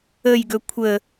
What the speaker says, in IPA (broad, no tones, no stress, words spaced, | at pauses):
əjɡɵ kʷʰə